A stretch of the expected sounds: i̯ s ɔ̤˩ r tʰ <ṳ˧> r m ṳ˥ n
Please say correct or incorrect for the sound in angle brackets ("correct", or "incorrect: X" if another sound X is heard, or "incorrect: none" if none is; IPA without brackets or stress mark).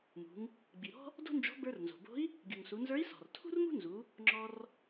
incorrect: ṳ˥